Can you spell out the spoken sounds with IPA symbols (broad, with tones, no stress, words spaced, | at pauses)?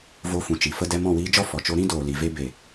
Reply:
vo˧fũ˨t͡ʃi˨fə˦ dɛ˧mɔ̃˦˨wiː˧d͡ʒɔ˦ fɔ˨t͡ʃo˦ ɾĩ˦ doː˨li˨ ve˦ be˨